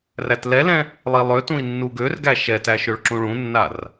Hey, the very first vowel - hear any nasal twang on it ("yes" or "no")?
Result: no